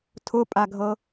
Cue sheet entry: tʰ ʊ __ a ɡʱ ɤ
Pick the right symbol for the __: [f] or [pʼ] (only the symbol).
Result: pʼ